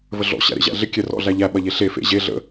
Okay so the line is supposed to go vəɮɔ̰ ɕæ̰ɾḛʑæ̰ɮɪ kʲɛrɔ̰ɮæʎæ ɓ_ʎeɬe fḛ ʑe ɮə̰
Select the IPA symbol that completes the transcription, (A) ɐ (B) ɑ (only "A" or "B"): A